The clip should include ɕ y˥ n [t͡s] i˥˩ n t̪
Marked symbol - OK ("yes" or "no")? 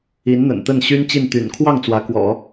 no